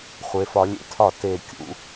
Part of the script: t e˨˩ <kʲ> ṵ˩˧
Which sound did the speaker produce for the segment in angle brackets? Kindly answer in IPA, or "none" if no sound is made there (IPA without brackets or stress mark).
kʲ